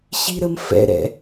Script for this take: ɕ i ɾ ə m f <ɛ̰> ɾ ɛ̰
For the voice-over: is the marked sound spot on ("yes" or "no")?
yes